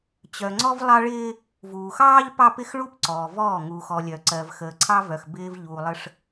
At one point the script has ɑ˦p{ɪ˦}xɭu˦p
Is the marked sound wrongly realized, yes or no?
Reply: no